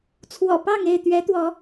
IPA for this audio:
t͡sʰ w ɔ̰˨˩ p ɑ˥˨ ŋ e˥˨ ɪ̯ t̪ ɥ ɛ˨˦ t̪ w ɔ˨˦

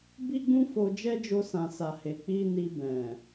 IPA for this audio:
b i˦ ɡ͡b ũ˦ f o˧ d͡ʒ ɛ˦ d͡ʒ o˧ s ã˨ s a˨ h e˨ k͡p i˧ n i˧ b ɛ̃˨

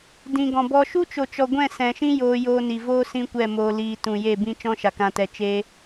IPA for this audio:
d ĩ˨ ɡ ɔ̃˨ b ɔ˧ ʃ u˦ t͡ʃ o˨ t͡ʃ ɔ˨ ɡʷ ɛ̃˦˨ s ɛ̃˨ ʃ ĩ˦ j oː˧ j oː˧ n i˨ v oː˦ s ĩ˦ kʷ ɛ˦˨ m oː˧ l iː˨ t ũ˨ j e˦˨ b ĩ˦ t͡ʃ ɔ̃˦ ʃ a˨ k ã˧ t ɛ˧ t͡ʃ eː˦

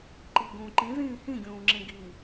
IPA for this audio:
ǃ i ɡ ũː ǃ ĩ z ĩː h ĩ ɡʲ ũː ŋ͡ǁ ẽ ɡ i

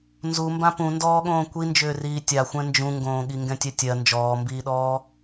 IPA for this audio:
n z u m b ã p ũ n d ɔː ɠ õː kʷ i n d͡ʒ ʏː r iː tʲ a xʷ ɛ̃ n d͡ʒ ũ ŋ ɡ õː ɠ i ŋ ɡ ɛ̃ tʲ ɛ tʲ ɜ n d͡ʒ ɔː m b iː ɗ ɔː

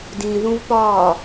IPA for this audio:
d ĩ ð ũ v p ɒː

